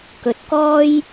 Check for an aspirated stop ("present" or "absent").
absent